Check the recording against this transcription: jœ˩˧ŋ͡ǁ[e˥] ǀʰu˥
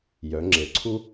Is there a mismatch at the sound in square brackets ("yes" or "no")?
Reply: yes